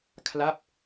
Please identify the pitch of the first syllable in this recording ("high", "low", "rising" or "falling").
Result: falling